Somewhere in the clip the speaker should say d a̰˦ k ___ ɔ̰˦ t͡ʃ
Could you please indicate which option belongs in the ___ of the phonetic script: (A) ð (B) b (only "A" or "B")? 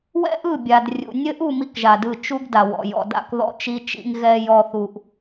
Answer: A